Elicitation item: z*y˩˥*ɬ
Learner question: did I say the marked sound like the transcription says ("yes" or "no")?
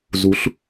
no